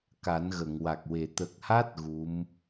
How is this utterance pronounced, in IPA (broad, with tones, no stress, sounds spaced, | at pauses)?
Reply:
k a˨˩˦ n ɣ ə˨˩˨ ŋ w a˨˩ k̚ w e˨˩ t̪ ə˨˩ k̚ h a˦˥ t̚ ɣ u˧˥ m